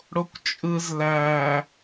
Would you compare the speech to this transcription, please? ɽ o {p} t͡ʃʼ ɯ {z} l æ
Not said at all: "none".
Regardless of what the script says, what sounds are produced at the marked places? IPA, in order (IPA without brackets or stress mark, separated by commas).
kʷ, z